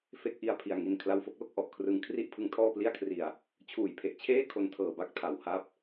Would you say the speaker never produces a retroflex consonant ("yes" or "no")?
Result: yes